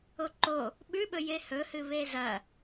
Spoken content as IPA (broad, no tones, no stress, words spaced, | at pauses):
oǃo | ɓʉɓɵ jehɵhɨ βezɐ